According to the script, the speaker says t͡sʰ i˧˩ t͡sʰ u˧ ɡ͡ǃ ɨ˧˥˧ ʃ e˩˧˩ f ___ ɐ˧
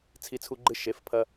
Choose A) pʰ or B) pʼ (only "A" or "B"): A